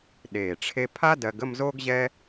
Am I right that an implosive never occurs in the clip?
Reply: no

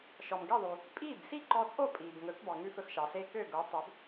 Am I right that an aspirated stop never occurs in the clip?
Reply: yes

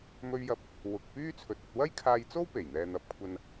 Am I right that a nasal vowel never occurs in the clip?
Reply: yes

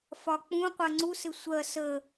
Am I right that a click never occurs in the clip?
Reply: no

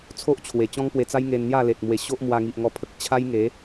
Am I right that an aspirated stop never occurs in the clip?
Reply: no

